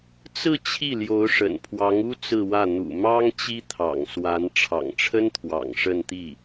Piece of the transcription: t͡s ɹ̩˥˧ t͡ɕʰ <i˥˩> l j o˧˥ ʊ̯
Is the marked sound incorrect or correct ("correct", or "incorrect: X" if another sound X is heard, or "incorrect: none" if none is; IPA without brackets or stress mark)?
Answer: correct